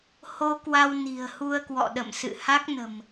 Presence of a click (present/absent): absent